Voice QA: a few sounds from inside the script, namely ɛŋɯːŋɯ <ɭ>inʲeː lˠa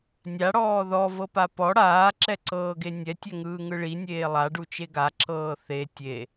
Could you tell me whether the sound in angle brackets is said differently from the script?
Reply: no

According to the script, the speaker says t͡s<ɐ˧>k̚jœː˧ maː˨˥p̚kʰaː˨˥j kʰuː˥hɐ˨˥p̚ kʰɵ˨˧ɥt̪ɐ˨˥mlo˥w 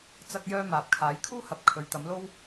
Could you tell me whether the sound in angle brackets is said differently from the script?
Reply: no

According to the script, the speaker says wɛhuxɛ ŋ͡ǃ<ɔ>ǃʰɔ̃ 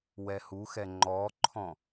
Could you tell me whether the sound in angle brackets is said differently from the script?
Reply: no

